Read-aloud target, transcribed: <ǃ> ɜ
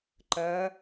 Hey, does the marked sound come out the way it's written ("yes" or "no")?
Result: yes